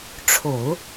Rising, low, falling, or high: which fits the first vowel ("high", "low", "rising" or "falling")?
low